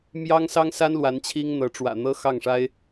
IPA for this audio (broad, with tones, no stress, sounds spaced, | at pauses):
m j ɑ˥ ŋ s ɑ˥ ŋ s a˥ n l w a˧˥ n t͡ɕʰ i˥ ŋ n̪ ɤ˧˥ ʈ͡ʂ w ä̰˨˩ n̪ ɤ˥ x ɑ˥˩ ŋ ʂ a˥ ɪ̯